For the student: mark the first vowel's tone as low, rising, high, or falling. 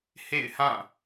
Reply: falling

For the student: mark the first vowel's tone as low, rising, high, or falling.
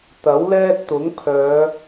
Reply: rising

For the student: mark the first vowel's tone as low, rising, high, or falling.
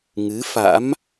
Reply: rising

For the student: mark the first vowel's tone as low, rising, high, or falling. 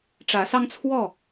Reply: rising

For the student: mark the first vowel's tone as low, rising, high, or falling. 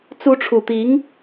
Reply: rising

